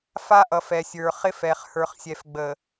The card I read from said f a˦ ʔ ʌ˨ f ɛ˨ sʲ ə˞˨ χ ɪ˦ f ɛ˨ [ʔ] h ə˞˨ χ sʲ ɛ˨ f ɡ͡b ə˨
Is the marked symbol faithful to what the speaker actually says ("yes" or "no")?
no